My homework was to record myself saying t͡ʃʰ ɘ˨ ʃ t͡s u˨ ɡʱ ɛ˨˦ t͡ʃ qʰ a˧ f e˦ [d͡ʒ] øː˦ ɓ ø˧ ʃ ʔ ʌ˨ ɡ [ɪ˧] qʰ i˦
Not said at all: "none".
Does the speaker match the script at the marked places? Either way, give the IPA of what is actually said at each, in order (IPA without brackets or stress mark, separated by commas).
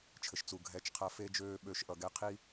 d͡ʒ, ɛ˧